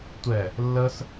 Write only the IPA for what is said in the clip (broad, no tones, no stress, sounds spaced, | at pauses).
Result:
tʷ ɛ | lː ə s